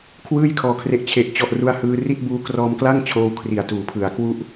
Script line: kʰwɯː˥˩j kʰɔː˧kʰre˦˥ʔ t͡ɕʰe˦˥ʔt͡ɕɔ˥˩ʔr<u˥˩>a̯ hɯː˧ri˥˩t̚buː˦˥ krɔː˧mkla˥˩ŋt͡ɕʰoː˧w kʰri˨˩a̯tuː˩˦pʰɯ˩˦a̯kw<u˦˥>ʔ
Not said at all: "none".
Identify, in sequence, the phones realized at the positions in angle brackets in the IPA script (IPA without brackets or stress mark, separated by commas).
u˥˩, u˦˥